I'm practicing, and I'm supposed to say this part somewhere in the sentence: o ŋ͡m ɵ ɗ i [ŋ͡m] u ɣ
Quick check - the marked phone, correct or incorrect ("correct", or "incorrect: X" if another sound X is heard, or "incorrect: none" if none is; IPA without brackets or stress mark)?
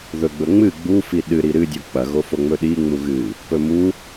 correct